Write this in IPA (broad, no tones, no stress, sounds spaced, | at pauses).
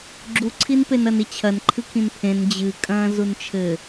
ɡ͡ǁ u ǀʰ i n p e n ɐ n i t͡ɕʰ ɐ n ǃʰ ɨ kʰ ĩ n pʰ ẽ n d͡ʑ ɨ kʼ ɐ̃ː z u n t͡ʃʰ ɘ